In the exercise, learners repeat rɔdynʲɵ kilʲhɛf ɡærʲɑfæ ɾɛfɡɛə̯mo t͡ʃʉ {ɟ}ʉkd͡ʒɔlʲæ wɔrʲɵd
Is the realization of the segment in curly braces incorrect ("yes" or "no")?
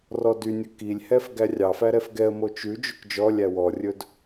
yes